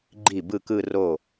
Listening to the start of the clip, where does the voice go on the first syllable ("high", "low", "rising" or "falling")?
falling